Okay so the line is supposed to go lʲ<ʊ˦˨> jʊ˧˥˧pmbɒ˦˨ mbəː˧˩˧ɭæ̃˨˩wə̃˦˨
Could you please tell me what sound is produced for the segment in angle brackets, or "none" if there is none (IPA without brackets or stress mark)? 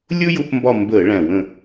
ʊ˥